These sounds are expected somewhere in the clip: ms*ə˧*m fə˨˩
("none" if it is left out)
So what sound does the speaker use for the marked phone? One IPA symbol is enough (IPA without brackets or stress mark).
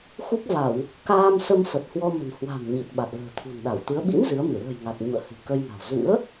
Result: ə˧